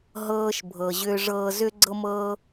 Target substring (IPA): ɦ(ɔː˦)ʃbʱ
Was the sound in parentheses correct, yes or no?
no